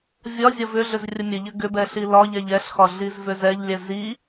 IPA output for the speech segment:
vʲ ɒ zʲ ɒ v ʏ ɮ ʏ z rʲ ə mʲ ə ʎ ɘ ɡ ʏ b ɛ ɬ i l ɒ ʎ ɛ ʎ ɛ ɬ x ɒ ɮ i z v ʏ z ɛ ʎ lʲ ɛ z i

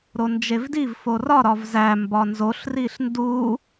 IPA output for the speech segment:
ɾ o n d͡ʒ e v d i v f o r ɒ ɾ ɒ v z æ m b ɒ n z o ɬ r i ɬ n d u

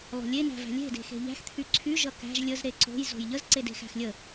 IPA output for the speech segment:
lˠ o̤ lʲ e n æ̤ v æ̤ lʲ e̤ d e̤ x e̤ ʎ æ̤ x t̪ʰ y ǀʰ y ʒ ʌ k æ̤ ʒ lʲ ə z ɾ e ǀ o̤ j z o̤ j ʎ ə z ǀ e d e̤ x æ̤ x lʲ ə

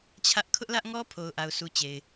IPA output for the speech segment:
t͡ɕʰ ä˦ ʔ kʰ ʊ˦ ʔ l ä˦ ʔ ŋ ɔ˦ pʰ o˨ ʊ̯ ʔ a˨ ʊ̯ sʰ u˨ t͡ɕ e˨ ɪ̯

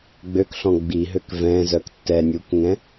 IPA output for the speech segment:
ɡ͡b ø k ɬ ɔ̃ ɡ͡b i ɦ ø k v ɛ̃ z œ k tː ɛ nʲ uː k ŋ ɛ̃

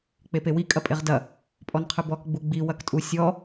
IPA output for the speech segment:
k͡p e p e w i kʼ ɐ pʼ e ʁ d ɐ | pʼ ɔ n qʰ ɨ b ɔ k ɡ͡b u ɡ͡b i w ɐ k tʼ u sʲ ɔ

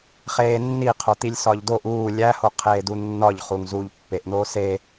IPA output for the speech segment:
χ eː nː i qʰ o t̪ i lʲ s ɒ ʎ d o ʔ uː lʲ æ h o qʰ eː d u nː ɒ ʎ χ u ŋ z uː ʎ pː e ʔ n̪ oː s e

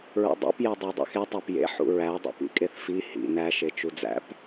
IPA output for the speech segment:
ɹ ṵ dˤ ḭ p j e dˤ u dˤ ḛ x e tˤ æ p j ḛ ħ ṵ ɹ æ dˤ ḭ p ḭ kʼ e θ f i h ḭ n æ ʃ e t͡ʃ u d͡z æ̰ p

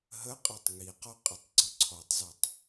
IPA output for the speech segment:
ɦ ə qʼ ʌ tˤ ŋ i q ɔ qʼ ɘ tˤ ɡ͡ǀ ʊ ǀʰ ɔ tˤ z ʌ tˤ

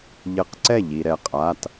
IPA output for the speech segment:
ʎ ɘ˧˩ q ǀ ɛ˥˩ ʎ i˩ ɾ ɛ˩ qʼ a˩˧˩ t

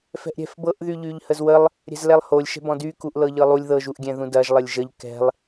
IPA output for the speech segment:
f ɛ̤ ʔ ɾʲ ɛ̤ f b ɤ ʔ ð y ʎ y ʎ h ə z w ə lˠ | ɾʲ ɛ̤ z l ɛ lˠ h o lʲ ʃ ɛ̤ b ɔ̃ d y k u ʔ l ɤ ʎ ɤ lˠ u lʲ ð ɤ ʒ u ʔ ɡʲ ɛ̃ ð ũ d ɐ ʒ lˠ ə lʲ ʒ ə ʎ k ɛ̤ lˠ

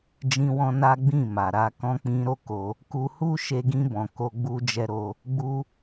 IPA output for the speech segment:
d͡ʒ ĩ˧ w ɔ̃˧ n a˦ ɡ͡b ĩ˦˨ m a˨ ɾ a˧ k ɔ̃˧ k͡p ĩ˧ ɾ o˦ k o˧ | k u˧ h u˦ ʃ e˧ ɡ ĩ˧ b ɔ̃˨ k o˧ ɡ͡b u˧ d͡ʒ ɛ˧ ɾ o˧ | ɡ͡b u˦

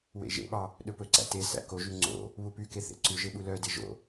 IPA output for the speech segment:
w ḛ ʒ ḛ ɓ ɑ | ɗ ɵ p ɵ ǀ æ̰ t e s æ̰ k o ʒ y ŋ͡ǀ o̰ | β u p y k e θ ḛ ǀ ʉ ʒ e ɓ u l œ d e ʒ o̰

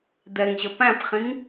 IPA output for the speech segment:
d̪ ɛ ŋ ʑ ə p æ̃ p χ ĩ ŋ

